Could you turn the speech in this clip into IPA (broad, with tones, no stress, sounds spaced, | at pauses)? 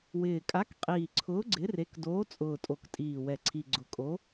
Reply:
w ɪː˨˩ kʼ a˨˥ k qʼ iː˨˩ ǀʰ ʊː˨˥ ɡ͡ǀ ɪ˨˥ r e˨˥ k d oː˨˥ t͡sʼ ʊː˨˩ tʼ o˨˩ k tʼ iː˨˩ w ɛ˨˩ ǀʰ i˨˩ ɡ͡ǀ ʊ˨˩ kʼ o˨˥